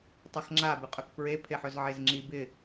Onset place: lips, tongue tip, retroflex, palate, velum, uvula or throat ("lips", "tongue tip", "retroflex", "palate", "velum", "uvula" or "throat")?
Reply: tongue tip